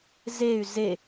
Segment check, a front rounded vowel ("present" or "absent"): present